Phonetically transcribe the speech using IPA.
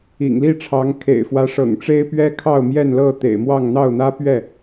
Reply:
ḭ˨˩ ŋ l i˥˨ ʈ͡ʂʰ ɑ˨˦ ŋ kʰ ḛ˨˩ ɪ̯ f w ä˨˦ ʂ ɤ̰˨˩ ŋ ʈ͡ʂ e˦ ɪ̯ p ɥ ɛ˦ kʰ ɑ˥˨ ʊ̯ m j ɛ˥˨ n l ɤ˥˨ t̪ ḛ˨˩ ɪ̯ m w ɑ˥˨ ŋ n̪ ɑ˥˨ ʊ̯ n̪ ä˦ p ɥ ɛ˥˨

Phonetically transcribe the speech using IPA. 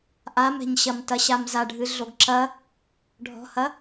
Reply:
ʔ a m ɛ̤ ɲ ɕ ɐ m t ɐ ɕ a m z a ɖʱ ɨ ɮ o ɡ ǁ ɐ | ɖʱ ɔ̤ h ɐ

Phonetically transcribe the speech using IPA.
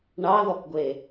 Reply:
ɳ ɑ ð ɔ k ɡʷ e

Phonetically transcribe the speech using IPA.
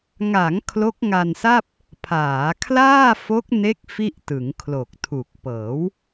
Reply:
ŋ a˩˦ ŋ kʰ l o˦˥ k̚ ŋ a˧ n s a˥˩ p̚ | pʰ aː˩˦ kʰ l aː˥˩ f o˦˥ k̚ n e˦˥ k̚ f i˥˩ ʔ t ɯ˩˦ ŋ kʰ l o˨˩ k̚ tʰ u˨˩ k̚ p ɤː˩˦ w

